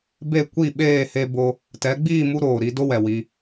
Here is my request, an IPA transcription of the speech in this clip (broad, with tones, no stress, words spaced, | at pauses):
be˦˨kʷi˦˨ɓeː˦˨ he˦bo˦ | tɛ˨˦ɡ͡biː˦˨mu˧ ɾoː˨ ɾi˨˦do˦wɛ˨ wi˧